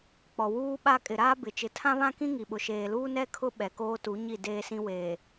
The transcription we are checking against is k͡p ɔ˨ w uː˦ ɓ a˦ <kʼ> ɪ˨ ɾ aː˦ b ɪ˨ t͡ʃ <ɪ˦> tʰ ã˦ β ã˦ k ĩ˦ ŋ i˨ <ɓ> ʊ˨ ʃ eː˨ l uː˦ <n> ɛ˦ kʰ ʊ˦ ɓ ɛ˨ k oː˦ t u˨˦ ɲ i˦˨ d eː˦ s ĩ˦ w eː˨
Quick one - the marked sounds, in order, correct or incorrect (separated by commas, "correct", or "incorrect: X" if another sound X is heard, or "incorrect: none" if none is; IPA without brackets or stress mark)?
correct, incorrect: ɪ˨, correct, correct